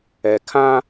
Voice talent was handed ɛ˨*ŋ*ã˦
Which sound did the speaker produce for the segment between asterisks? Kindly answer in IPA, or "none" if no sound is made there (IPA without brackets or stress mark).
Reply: kʰ